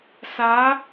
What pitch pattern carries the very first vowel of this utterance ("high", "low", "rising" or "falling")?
rising